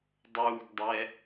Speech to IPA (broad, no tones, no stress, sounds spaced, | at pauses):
dˤ uː ɡ dˤ ɛ